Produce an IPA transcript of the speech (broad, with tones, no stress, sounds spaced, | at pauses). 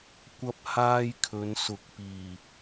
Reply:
kʷ ɐ˥ p̚ h aː˥ j kʰ ɵ˨˧ n s ʊ˨˥ k̚ p iː˨˩